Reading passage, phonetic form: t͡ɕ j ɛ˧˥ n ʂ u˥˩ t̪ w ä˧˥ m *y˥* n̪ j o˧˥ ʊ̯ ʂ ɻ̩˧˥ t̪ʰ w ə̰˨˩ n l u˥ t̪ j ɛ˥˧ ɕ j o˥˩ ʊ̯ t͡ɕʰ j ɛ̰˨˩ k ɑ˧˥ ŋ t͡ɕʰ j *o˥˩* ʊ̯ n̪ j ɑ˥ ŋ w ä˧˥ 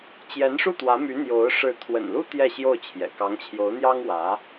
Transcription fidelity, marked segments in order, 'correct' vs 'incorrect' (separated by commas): incorrect, incorrect